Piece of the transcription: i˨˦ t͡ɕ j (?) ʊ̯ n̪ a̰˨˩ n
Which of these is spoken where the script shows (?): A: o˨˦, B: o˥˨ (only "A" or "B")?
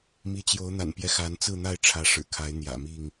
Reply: A